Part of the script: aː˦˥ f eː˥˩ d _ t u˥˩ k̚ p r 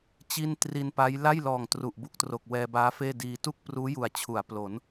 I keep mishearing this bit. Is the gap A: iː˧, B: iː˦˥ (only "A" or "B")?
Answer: A